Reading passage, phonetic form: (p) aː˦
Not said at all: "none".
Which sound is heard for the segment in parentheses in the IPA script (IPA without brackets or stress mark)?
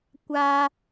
kʷ